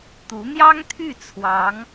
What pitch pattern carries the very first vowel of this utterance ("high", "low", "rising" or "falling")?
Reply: rising